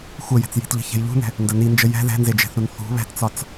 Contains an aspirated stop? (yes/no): no